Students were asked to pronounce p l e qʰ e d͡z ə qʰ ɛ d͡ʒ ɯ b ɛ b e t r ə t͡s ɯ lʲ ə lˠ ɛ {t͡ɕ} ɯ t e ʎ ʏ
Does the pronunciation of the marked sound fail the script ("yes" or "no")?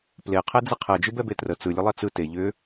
yes